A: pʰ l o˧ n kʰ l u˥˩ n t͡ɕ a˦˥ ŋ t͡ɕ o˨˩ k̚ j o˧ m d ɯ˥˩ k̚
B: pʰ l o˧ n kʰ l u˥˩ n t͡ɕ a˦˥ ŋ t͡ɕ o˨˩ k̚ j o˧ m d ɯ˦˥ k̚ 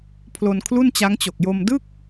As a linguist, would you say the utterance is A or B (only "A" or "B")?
A